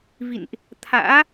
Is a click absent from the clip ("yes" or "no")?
yes